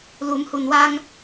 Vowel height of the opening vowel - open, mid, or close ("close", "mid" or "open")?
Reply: close